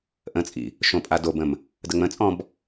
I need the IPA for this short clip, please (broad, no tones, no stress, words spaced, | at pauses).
ʔə̃t͡sʼḭ | ʃõpʼadobə̃m | dəŋ͡mə̃t͡sʼɔ̃b